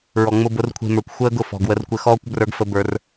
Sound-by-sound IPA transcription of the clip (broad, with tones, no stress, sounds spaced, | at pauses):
ɹ ɔ˨ ŋ͡m ʊ˧ b ʊ˨˦ r kʷʰ e̤˧ m ə˞˨ kʷ xʷ əː˦ ɡ ʊ˦˨ f ɔ̤˨ ɡ w ə˧ r kʷ ɘ˧ x ɔː˦ kʷ b r ə˞˧ ɡ f ə˧ b ə˞˧ r